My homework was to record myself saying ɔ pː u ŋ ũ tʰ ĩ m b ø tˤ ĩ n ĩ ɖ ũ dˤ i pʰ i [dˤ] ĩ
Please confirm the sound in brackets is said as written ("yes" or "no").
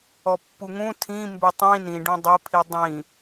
yes